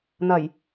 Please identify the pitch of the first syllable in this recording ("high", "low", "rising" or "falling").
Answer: low